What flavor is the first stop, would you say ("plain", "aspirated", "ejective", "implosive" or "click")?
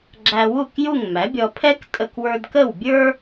click